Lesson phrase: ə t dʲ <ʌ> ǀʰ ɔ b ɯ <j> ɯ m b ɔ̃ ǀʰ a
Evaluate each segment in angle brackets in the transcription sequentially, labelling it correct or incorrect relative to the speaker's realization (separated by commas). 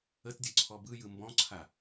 correct, correct